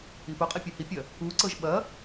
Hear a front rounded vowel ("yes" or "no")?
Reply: no